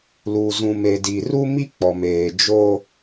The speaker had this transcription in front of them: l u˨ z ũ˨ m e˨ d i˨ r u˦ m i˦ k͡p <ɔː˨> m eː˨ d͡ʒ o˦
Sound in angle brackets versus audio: incorrect: ɔ˨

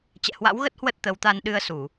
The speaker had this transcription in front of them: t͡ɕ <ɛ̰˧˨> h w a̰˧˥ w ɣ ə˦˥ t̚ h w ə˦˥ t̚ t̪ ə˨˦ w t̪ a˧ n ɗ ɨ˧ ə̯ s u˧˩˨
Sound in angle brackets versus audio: correct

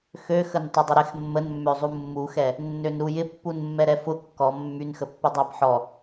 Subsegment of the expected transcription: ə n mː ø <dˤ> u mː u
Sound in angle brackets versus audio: incorrect: zˤ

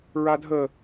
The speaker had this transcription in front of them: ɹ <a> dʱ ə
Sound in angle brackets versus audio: correct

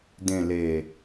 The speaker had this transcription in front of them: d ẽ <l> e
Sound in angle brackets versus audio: correct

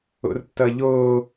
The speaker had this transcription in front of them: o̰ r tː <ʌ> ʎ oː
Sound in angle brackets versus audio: correct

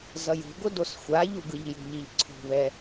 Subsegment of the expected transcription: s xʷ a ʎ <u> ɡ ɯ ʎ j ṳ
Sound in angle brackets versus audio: correct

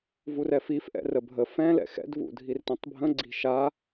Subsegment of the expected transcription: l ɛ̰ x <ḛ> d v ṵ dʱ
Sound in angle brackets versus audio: incorrect: ɛ̰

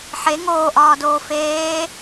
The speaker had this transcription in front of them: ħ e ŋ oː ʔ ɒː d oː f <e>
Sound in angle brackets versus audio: incorrect: eː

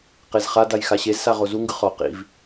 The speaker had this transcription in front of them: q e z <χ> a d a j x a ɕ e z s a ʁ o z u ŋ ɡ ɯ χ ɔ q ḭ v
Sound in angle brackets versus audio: correct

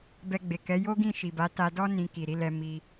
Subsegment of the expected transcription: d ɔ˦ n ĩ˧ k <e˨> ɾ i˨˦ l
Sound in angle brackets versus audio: incorrect: i˨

